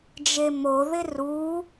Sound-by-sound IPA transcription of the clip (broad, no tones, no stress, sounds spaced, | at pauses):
d͡ʒ e m o ð ɪ r u